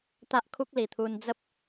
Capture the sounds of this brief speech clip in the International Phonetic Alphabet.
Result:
t̪ a˦ ʔ kʰ u˦ k̚ l i˨˩ t̪ʰ u˧ n d͡z ə˦ p̚

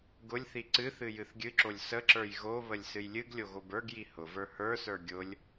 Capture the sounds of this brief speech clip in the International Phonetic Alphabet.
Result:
ɡ ʊ lʲ θ i ǀ ɨ θ ɨ j ɨ θ ɡʲ ɨ ǁ o lʲ s ə ǁ ə˞ j ɣ o β ə lʲ s ɨ j lʲ ɨ ɡ lʲ o ɣ o b ə˞ ɡ j i h ʊ v ə˞ h ə˞ s ə˞ ɡʲ ʊ lʲ

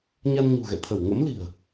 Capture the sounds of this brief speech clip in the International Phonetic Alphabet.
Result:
ɲ a˧ n ɲ ṳ˨˩ ɣ ɛ̰˧˨ t̪ʰ ə˧˩ w ŋ ə̰˧˥ m l i̤˨˩ ə̯

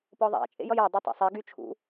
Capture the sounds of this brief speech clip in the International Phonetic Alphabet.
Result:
p ɔ ðˤ a̰ t͡ʃʼ ḛ j ʌ j a dˤ o tˤ ḛ sˤ e ɡ y t͡ʃʰ ṵ

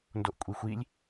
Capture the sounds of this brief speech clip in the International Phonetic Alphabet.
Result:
n d o ʔ kʷʼ i xʷ i lʲ

